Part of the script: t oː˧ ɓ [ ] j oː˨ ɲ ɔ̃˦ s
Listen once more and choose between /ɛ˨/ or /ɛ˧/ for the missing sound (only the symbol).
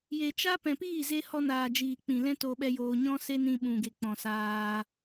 ɛ˧